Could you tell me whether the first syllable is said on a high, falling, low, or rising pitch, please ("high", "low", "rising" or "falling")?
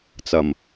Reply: low